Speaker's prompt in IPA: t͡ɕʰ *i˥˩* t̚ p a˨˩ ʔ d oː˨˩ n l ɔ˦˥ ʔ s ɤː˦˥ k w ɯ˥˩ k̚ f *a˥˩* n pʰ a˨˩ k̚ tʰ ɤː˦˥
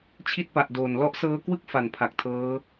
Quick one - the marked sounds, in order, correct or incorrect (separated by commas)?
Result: correct, incorrect